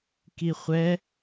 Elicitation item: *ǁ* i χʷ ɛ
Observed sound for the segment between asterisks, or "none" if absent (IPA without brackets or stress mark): k